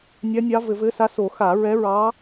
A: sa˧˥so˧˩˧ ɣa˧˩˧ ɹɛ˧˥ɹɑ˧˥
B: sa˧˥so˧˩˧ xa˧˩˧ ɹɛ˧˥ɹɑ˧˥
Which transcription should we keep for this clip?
B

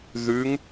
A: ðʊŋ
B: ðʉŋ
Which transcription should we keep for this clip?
B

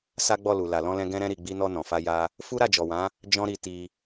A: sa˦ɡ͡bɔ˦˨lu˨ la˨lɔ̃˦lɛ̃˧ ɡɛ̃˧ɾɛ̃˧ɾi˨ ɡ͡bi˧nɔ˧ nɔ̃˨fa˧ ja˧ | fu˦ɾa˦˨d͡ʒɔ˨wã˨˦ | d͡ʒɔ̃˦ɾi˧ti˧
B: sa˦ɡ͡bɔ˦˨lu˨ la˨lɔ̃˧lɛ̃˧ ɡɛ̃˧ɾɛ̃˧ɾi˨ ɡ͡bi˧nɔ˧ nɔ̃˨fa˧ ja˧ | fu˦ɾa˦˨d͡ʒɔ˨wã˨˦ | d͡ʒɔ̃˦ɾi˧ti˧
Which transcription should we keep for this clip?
B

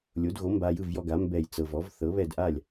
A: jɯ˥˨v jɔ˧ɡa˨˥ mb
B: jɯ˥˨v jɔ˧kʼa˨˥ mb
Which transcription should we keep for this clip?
A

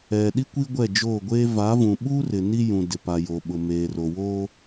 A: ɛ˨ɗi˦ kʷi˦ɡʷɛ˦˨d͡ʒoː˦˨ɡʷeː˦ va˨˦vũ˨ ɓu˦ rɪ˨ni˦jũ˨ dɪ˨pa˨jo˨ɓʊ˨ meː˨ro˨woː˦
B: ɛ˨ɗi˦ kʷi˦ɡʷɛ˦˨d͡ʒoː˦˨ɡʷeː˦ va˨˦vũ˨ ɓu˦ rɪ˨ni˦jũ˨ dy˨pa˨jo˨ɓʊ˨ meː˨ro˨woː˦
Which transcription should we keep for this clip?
A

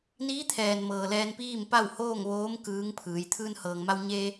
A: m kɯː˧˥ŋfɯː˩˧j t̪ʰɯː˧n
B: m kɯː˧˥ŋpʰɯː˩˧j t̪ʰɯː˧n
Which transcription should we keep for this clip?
B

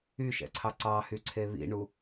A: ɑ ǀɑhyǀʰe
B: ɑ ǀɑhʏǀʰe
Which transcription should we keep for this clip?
A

